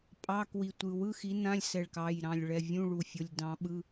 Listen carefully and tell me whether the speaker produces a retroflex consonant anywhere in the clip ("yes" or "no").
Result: yes